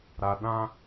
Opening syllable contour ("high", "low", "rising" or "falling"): low